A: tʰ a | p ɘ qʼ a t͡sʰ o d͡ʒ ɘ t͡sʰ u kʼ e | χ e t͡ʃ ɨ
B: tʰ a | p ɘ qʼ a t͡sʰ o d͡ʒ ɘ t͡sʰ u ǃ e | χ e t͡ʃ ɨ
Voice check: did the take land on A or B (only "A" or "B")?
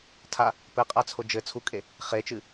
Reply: A